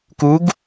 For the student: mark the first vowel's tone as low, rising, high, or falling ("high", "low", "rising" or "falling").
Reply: rising